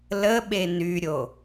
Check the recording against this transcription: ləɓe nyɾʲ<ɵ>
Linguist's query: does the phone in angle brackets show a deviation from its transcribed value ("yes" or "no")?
yes